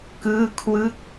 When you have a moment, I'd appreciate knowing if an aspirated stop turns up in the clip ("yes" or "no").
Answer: yes